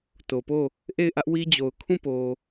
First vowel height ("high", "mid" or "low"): mid